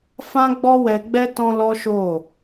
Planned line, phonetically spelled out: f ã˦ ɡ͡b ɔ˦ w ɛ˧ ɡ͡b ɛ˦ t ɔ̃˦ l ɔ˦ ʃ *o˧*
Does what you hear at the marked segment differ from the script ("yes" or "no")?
yes